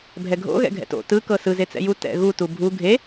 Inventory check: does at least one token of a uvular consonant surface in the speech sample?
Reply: no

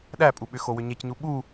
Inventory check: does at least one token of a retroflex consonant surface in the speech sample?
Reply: no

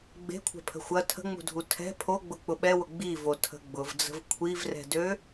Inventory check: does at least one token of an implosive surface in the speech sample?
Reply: yes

